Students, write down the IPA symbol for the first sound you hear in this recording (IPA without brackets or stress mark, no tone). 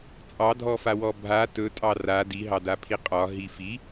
t͡sʼ